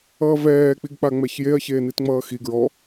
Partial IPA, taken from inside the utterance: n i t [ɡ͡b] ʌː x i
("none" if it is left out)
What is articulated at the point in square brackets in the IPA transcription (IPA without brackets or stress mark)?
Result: ŋ͡m